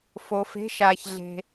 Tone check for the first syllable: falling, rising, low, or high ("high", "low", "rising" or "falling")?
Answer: low